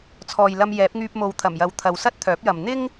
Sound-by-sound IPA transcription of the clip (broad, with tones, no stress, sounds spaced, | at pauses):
t͡sʰ ɔː˨ j l ɐ˧ m j ɛː˨˥ p̚ ŋ yː˧ p̚ m o˨˧ w t̪ʰ ɐ˨˩ m j ɐ˨ w t̪ʰ ɐ˨˧ w s ɐ˥ t̚ t̪ʰ œː˨˥ p̚ j ɐ˨ m n̪ ɪ˥ ŋ